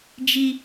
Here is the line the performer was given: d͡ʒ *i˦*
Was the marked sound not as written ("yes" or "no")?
no